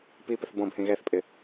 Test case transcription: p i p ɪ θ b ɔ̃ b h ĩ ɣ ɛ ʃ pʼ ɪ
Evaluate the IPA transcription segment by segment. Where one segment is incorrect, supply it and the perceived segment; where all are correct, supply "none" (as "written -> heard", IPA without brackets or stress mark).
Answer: ʃ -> θ